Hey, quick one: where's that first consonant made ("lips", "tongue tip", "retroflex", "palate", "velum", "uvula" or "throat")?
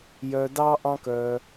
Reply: palate